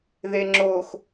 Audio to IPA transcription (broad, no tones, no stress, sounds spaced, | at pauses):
ð e ŋ͡ǁ o x